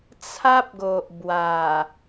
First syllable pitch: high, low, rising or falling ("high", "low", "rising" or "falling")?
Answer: high